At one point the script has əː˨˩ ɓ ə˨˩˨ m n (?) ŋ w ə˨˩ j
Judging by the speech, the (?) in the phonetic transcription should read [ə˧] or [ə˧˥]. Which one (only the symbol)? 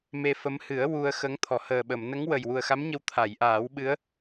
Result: ə˧˥